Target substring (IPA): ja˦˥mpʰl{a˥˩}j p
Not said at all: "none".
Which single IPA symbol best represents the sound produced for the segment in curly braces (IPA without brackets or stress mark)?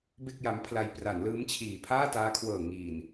a˧